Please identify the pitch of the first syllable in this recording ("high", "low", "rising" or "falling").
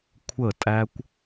falling